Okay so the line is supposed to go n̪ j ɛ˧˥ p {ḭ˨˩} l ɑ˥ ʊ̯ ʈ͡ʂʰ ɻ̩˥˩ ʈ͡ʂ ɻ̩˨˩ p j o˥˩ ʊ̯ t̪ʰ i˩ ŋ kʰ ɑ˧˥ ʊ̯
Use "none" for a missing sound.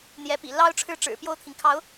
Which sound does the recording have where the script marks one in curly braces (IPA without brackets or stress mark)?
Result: ḭ˨˩